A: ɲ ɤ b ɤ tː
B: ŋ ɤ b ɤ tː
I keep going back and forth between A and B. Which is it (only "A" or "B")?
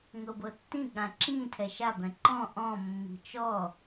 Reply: B